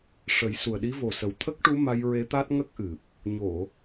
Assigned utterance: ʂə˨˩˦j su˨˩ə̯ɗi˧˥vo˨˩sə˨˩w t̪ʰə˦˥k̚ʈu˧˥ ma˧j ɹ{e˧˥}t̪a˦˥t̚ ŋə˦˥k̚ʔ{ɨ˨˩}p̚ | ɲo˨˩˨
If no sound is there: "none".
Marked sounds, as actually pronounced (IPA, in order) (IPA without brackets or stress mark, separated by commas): e˧˥, ɨ˨˩